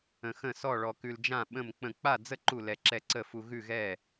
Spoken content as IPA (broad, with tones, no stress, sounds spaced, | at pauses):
ə̃˧ x ə̃˥˨ s ɔ˥˨ ɭ ɔ˧ k ʉ˧ l d͡ʒ ã˥˨ ɓ ə̃˥˨ m k͡p ə̃˥˨ k͡p a˥˨ d͡z ə˥˨ ǃ u˥˨ l ɛ˧ ǁ ɛ˥˨ ǀ ə˥˨ f u˧ ɣ ʉ˥˨ ɣ ɛ˥˨